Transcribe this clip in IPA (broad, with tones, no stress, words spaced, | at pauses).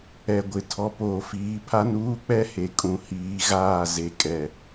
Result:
ɛ˨ɡʷɪ˨ tʰɔ˨poː˨fiː˨˦pʰa˦n uː˦k͡pɛ˦ he˨kʼũ˨hiː˨˦ɣaː˦˨ ze˨kʼɛ˨